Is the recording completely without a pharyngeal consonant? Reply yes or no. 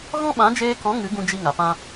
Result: yes